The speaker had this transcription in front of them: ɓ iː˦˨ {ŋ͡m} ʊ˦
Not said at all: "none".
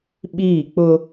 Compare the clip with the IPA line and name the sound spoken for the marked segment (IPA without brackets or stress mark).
k͡p